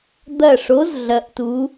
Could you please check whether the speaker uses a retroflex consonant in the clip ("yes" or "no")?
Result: yes